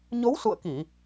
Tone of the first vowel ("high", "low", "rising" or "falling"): rising